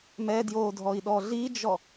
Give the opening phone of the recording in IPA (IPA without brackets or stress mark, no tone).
m